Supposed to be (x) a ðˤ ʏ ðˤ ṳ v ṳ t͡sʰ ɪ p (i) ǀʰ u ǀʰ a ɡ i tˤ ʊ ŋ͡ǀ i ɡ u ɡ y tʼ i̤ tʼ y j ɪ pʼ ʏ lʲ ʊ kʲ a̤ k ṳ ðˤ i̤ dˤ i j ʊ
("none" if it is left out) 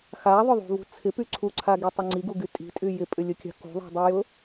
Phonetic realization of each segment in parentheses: x, y

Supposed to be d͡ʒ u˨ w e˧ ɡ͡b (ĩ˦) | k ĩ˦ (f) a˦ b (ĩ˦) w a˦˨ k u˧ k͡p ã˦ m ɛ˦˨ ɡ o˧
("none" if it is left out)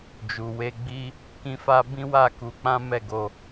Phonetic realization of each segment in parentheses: i˦, f, ĩ˦

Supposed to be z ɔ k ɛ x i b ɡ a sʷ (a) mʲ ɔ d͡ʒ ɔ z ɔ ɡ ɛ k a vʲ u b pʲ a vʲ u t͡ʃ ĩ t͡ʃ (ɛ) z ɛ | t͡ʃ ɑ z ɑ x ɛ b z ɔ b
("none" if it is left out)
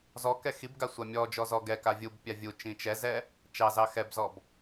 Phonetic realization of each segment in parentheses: a, ɛ

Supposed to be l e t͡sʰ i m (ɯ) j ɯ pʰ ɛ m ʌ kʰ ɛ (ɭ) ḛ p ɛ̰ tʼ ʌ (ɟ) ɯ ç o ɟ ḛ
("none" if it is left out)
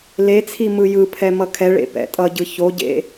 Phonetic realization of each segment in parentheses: ɯ, ɭ, ɟ

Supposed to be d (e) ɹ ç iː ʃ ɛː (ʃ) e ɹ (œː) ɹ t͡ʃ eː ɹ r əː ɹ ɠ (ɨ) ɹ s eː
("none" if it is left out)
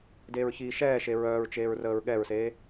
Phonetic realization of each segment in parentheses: eː, ʃ, œː, ɛ

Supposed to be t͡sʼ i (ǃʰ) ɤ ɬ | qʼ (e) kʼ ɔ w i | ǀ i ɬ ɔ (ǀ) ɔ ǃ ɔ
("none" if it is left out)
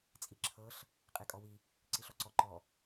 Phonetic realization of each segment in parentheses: ǁʰ, e, ǀ

